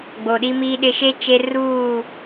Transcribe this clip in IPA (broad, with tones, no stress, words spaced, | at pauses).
ɡ͡boː˨ɗiː˦miː˦ɗɪ˦ ʃe˦ t͡ʃe˦ ruː˦˨